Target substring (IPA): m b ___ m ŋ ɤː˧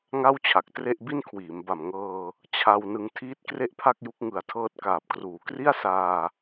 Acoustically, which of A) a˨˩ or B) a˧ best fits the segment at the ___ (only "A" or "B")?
A